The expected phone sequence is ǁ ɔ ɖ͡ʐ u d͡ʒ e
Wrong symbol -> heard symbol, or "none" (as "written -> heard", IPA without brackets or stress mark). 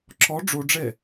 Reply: d͡ʒ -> ɖ͡ʐ